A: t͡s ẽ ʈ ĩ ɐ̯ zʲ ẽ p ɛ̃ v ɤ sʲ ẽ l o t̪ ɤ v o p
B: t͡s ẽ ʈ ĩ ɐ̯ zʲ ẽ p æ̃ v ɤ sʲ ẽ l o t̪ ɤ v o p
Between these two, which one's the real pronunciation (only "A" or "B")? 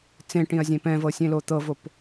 A